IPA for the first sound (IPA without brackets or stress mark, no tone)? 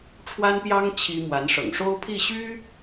ʈ͡ʂʰ